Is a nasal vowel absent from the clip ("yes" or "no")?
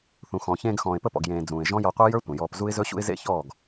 no